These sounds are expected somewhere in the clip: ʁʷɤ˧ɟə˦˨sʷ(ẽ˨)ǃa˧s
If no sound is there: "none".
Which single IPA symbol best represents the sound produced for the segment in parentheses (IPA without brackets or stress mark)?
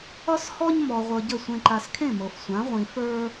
ẽ˧